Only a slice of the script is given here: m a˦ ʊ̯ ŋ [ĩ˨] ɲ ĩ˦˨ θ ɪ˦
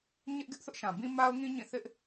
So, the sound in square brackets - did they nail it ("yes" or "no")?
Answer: no